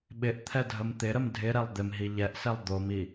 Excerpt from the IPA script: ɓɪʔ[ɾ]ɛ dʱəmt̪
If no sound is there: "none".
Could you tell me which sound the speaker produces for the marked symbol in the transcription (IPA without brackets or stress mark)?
t̪ʰ